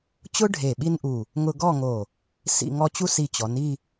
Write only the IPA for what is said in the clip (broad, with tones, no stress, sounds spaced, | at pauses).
t͡ɕ ʊ˥ ɖʱ e˧˩ ɓ i˥ n ʔ u˧˩ | ŋ ʊ˧ ɡ ɔ˥˧ ŋ o˧˩ | s ḭ˥˧ ŋ ɔ˥ t͡ɕ u˥˧ s i˧˩ t͡ɕ ɔ˩˧ n i˥˧